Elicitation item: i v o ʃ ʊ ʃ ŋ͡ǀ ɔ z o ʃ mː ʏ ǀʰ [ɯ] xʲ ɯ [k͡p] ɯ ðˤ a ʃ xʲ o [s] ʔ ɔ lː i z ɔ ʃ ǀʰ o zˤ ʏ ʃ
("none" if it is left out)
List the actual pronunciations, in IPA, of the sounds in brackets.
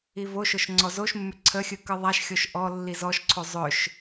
ə, k, ʃ

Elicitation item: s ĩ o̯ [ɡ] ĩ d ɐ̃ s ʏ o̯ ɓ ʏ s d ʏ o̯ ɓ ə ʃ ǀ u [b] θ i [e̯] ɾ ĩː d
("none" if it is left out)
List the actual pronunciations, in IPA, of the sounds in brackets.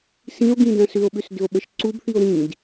ɡ, b, o̯

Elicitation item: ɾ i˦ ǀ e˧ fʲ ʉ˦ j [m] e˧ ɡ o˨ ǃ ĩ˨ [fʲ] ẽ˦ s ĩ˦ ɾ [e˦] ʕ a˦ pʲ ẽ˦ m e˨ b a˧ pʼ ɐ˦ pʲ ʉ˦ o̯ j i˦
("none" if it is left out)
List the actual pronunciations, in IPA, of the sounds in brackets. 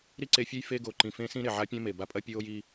f, f, e˨

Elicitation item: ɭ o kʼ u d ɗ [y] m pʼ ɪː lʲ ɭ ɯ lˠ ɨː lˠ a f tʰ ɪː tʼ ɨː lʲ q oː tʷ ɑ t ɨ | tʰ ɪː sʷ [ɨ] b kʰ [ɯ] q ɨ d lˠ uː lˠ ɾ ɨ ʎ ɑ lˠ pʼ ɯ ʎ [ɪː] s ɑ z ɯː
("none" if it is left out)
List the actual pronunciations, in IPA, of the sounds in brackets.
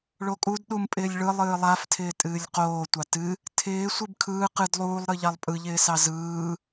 u, ɨ, ɯː, ɪː

